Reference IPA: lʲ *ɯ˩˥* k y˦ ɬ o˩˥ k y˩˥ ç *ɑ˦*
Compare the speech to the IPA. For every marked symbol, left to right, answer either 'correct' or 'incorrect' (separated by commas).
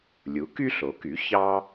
incorrect, correct